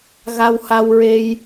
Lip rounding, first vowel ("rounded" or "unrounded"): unrounded